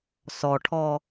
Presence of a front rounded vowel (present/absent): absent